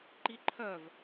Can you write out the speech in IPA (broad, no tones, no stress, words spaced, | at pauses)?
ǃiǃʰœv